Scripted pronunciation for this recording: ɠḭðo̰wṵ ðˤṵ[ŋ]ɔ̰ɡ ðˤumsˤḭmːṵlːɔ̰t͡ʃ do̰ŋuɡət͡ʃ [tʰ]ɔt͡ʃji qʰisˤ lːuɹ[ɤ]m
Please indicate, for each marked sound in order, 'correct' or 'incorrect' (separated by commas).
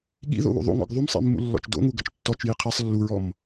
correct, incorrect, incorrect